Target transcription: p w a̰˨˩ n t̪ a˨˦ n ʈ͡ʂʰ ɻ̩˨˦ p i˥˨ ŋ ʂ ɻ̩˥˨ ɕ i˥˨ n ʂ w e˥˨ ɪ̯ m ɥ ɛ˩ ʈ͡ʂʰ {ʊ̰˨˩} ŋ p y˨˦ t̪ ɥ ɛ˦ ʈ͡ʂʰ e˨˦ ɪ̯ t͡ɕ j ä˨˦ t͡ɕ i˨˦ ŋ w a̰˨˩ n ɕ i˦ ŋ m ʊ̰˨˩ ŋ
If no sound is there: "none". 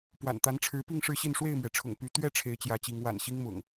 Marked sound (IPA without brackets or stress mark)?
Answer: ʊ̰˨˩